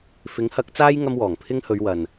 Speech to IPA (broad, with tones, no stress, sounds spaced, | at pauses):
f ɪ˨˥ ŋ h ɐ˨˥ k̚ t͡s aː˥ j ŋ ɐ˥ m w ɔː˨˩ ŋ pʰ ɪ˥ ŋ h ɵ˨˧ ɥ w ɐ˨ n